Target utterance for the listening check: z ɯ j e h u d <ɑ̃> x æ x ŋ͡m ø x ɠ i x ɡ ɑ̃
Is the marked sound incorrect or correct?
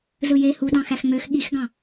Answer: correct